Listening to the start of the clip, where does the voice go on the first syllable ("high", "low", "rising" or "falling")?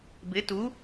rising